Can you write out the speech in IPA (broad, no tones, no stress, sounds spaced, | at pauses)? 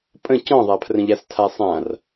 pʼ ə̃ c ɔ̃ ðˤ a pʰ r ə̃ ʎ a s tʰ a sˤ ã r